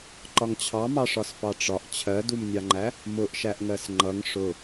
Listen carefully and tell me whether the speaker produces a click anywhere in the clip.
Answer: yes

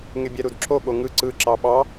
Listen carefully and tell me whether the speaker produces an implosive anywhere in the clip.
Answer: yes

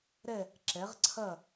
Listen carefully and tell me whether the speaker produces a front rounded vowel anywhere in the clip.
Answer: no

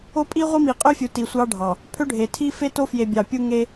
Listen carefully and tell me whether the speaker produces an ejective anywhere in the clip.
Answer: yes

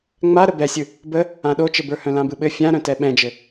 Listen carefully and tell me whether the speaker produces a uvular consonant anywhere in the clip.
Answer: no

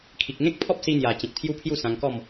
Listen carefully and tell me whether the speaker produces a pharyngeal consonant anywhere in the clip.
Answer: no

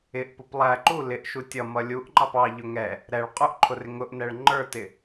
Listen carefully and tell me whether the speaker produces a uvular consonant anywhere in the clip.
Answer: yes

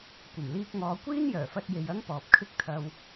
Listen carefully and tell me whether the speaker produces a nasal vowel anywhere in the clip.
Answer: no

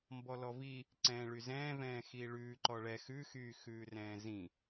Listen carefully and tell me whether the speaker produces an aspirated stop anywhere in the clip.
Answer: no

